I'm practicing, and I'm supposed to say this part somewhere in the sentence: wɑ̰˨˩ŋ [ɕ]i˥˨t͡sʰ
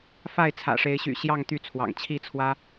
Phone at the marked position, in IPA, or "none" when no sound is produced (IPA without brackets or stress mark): t͡ɕʰ